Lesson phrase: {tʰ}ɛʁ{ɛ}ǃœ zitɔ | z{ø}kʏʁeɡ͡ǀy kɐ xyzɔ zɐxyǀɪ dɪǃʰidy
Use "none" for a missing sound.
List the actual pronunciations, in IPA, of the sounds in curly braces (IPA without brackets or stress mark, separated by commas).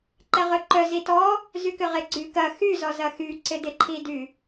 ǃ, œ, y